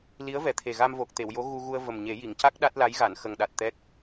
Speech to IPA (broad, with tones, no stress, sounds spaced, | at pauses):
l i˧˥ ə̯ v ɛ˨˩ t̪ʰ e˨˩ ɣ a˧ m v o˨˩ k̚ t̪ e˨˩˨ w j o˧˥ ɣ u˧ ɣ u˧ ə̯ v ə˨˩ m ɲ e˨˩˦ j i˨˩˨ ŋ c a˦˥ k̚ ɗ a˦˥ t̚ l a˧˥ j ɣ a˨˩˨ n x ə˨˩ ŋ ɗ a˨˩ t̚ t̪ ɛ˦˥ k̚